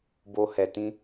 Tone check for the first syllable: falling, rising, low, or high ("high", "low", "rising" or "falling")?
high